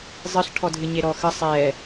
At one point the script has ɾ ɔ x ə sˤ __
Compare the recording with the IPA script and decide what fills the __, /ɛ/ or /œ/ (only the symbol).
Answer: ɛ